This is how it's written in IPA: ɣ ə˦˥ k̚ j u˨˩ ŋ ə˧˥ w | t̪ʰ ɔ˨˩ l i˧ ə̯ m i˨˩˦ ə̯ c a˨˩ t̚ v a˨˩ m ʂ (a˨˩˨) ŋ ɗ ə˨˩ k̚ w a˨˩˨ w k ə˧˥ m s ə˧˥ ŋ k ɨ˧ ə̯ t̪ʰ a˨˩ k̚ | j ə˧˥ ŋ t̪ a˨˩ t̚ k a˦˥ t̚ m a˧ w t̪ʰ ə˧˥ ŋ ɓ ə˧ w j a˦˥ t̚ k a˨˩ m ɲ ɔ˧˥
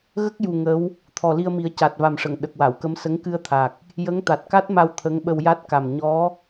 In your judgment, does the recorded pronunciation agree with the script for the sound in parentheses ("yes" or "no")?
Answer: no